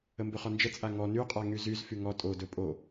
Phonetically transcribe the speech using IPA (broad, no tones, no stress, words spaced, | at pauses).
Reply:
əmbɵχɔnd͡ʒə t͡sʼaŋɔ nyqʼa ŋyzyz fyŋɔ tʼodɵ pʼo